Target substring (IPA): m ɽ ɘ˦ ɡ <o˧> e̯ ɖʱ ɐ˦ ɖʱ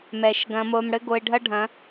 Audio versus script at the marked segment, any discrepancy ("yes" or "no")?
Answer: no